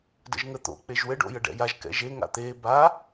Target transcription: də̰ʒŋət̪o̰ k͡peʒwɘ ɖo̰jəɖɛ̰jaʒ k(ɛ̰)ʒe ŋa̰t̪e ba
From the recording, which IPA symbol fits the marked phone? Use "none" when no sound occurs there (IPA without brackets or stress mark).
ɛ̰